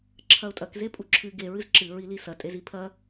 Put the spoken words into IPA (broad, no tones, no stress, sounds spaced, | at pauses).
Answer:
ǁʰ ɐ ʊ̯ tʼ ɐ k z e pʼ u ǁʰ ɨ ɡ e ɹ ɨ z ǁ ɨ ɹ i l i s ɐ tʼ e z i pʰ ɐ